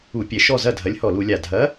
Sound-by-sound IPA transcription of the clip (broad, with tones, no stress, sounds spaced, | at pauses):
u˧˩˧ pʲ ɛ˨˩ ʃ ɔ˥˩ z ɐ˥˩ dʱ ɐ˨˥ lʲ h ɔ˧˩˧ l u˧˩˧ lʲ a˨˩ dʱ ɐ˨˥